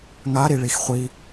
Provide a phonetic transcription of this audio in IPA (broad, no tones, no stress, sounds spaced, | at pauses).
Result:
ŋ a ɾ i ɭ i x χʷ i